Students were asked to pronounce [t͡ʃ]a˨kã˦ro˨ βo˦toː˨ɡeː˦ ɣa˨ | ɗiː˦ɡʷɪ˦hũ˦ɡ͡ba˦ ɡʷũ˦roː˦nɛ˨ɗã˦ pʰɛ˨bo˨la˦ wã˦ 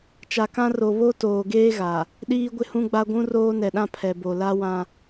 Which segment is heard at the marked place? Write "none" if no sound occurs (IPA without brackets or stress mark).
t͡ʃ